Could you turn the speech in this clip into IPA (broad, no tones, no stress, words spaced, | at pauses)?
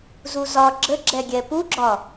zuzɒ ɡ͡ǁəɡ͡ǁɛɡʲɛ puɡ͡ǁɒ